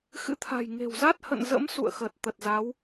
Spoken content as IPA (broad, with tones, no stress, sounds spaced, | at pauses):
x ɨ̰˧˥ t̪ʰ a̤˨˩ j ŋ e̤˨˩ w z a˦˥ t̚ h ə̰˧˨ n z ə̰˧˥ m s ṵ˧˨ ə̯ x əː˨˩ t̚ t̪ ə˨˩ t̚ z a˨˦ w